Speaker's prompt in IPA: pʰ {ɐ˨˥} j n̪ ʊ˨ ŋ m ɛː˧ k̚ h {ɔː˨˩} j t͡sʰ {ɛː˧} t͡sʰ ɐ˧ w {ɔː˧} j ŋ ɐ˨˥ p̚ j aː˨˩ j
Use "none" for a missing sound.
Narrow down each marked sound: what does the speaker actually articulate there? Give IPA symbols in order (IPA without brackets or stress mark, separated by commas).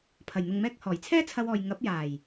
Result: ɐ˨˩, ɔː˨˩, ɛː˥, ɔː˨